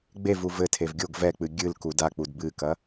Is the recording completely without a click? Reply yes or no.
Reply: yes